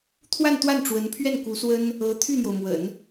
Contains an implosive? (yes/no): no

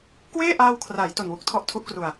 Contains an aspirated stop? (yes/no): yes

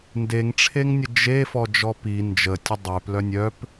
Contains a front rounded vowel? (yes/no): yes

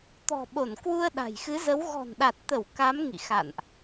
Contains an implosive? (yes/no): yes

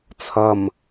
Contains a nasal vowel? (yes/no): no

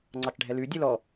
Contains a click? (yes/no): yes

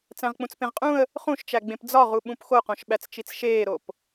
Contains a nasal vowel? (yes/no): yes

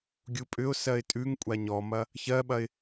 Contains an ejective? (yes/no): yes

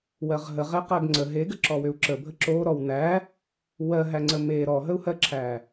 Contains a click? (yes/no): yes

